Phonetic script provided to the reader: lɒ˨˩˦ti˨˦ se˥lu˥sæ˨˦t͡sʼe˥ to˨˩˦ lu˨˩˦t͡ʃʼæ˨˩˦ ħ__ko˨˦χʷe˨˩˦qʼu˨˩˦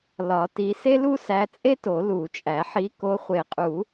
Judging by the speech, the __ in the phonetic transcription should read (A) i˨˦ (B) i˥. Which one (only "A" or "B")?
A